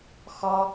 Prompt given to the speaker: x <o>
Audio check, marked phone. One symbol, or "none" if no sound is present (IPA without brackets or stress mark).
ɔ